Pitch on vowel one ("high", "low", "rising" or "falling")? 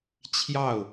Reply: falling